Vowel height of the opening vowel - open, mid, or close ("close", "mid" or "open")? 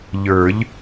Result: mid